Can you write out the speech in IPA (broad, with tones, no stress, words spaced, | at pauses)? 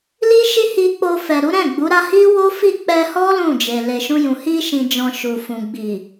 li˦ ʃi˦hi˧k͡po˧fɛ˨ ɾu˨˦ɾɛ̃˦˨ ɡ͡bu˨˦ɾa˦ hi˦wo˦fi˦˨ k͡pɛ˧hɔ˦ lũ˦˨d͡ʒe˨ le˨ʃũ˧jũ˨ hi˧ʃĩ˨d͡ʒɔ̃˨ ʃu˨fũ˨ ɡ͡bi˨